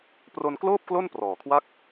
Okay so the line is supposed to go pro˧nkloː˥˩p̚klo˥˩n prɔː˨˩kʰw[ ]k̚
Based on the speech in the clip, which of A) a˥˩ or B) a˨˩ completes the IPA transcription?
A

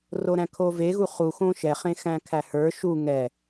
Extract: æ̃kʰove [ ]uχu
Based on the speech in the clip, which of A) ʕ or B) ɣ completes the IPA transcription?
B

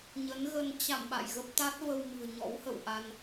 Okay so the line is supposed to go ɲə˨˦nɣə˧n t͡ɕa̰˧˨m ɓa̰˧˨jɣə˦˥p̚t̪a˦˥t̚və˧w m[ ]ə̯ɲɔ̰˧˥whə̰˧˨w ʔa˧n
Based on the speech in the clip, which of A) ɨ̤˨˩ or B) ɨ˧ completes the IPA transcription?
A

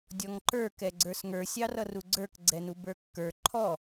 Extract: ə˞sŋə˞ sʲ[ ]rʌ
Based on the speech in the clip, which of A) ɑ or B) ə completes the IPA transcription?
A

